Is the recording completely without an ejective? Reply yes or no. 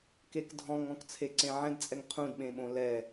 no